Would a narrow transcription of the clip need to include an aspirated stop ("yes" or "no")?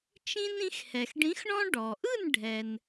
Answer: no